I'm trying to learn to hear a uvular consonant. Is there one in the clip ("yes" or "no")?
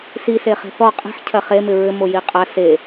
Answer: yes